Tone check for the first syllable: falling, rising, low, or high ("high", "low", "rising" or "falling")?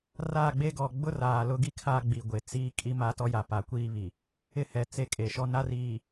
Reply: falling